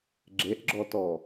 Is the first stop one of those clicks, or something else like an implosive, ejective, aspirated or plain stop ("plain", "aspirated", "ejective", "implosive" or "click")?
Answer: click